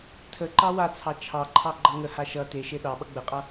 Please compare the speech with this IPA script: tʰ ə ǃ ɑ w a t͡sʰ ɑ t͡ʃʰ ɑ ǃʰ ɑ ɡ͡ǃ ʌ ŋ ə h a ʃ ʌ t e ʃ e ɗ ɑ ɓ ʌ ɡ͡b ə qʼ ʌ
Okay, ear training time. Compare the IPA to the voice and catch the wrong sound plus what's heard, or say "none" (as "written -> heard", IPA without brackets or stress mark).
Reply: none